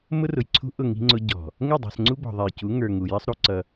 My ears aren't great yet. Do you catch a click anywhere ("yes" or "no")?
yes